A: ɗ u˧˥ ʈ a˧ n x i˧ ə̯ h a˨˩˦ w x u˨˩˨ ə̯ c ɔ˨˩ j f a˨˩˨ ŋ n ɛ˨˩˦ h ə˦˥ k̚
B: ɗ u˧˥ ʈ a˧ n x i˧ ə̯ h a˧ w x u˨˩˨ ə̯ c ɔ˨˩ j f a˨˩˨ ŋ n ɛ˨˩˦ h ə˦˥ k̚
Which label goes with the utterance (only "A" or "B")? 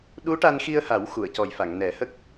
A